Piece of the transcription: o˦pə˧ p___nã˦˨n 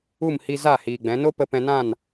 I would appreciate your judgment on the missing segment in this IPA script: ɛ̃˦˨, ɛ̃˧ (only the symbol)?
ɛ̃˧